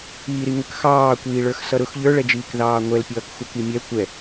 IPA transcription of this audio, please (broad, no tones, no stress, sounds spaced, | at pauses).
iː ɾ i ŋ ə k x ɑː kʷ iː ɭ ə˞ x s ʌ ɾ ʊ x ʎ ə˞ ɭ ɛ d͡ʒ iː k ð ɑː ŋʷ ɛ l pʲ ʌː k xʷ ʌ k i mʲ ɛ kʷ ɛ